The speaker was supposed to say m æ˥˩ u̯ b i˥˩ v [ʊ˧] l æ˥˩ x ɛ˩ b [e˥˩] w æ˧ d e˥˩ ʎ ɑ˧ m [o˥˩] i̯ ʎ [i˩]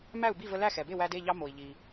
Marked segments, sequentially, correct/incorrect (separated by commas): incorrect, correct, incorrect, correct